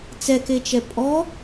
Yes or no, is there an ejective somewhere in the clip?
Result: yes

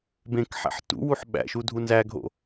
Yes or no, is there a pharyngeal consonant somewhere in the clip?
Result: yes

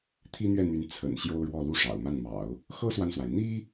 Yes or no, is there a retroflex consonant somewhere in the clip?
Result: yes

